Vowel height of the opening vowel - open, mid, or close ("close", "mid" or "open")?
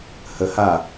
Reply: mid